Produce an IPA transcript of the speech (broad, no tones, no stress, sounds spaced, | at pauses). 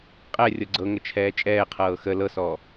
qʼ ɛ rʲ ɤ ɡ͡ǀ ɤ ŋ ə t͡ʃʰ ɛː t͡ʃʼ ɛː qʰ ɤː x ə l ɤ s ɔ